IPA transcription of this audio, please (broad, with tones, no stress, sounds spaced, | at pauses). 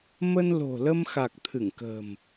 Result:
m ə˧ n l o̤˨˩ l ə˧ m x a˨˩ k̚ t̪ʰ ɨ˧˩ ŋ k ə̤ː˨˩ m